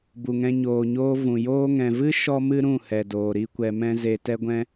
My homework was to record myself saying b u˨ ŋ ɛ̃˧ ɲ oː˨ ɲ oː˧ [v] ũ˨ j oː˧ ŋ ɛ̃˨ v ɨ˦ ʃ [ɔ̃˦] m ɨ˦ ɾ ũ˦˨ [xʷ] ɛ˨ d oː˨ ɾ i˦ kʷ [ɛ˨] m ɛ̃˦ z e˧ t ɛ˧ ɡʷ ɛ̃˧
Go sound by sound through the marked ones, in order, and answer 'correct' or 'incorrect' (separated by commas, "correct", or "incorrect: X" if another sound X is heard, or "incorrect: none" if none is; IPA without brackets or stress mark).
correct, incorrect: ɔ˦, incorrect: h, incorrect: ɛ˧